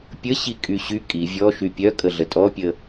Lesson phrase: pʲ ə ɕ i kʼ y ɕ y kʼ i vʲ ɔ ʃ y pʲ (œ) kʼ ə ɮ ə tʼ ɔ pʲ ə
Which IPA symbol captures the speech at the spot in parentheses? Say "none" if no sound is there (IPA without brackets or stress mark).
œ